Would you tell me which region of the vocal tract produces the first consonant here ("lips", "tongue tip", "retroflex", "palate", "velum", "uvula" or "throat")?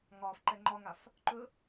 velum